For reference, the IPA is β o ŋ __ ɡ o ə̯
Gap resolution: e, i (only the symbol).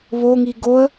i